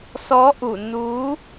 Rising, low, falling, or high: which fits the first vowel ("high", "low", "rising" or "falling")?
rising